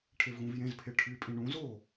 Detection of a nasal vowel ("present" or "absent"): present